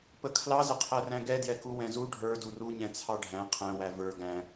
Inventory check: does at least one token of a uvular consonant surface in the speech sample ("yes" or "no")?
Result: yes